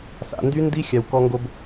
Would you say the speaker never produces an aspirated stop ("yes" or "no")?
yes